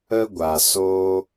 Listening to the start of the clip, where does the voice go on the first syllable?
high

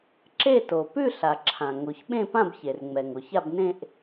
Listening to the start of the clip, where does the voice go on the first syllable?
falling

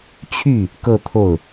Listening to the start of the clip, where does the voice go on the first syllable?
falling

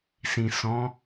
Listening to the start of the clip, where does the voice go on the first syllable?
low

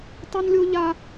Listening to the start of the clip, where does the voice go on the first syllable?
high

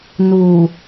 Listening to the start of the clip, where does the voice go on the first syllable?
low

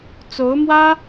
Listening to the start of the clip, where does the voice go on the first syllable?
rising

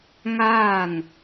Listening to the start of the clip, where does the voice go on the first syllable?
falling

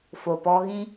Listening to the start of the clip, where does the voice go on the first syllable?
low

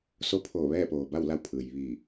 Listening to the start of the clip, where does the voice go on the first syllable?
rising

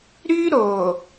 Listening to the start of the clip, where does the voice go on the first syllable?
high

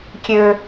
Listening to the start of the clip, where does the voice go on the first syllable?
high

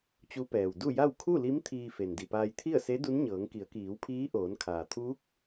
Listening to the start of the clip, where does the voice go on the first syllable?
rising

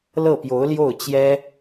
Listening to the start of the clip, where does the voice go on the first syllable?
falling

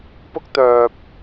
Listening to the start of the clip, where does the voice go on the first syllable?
high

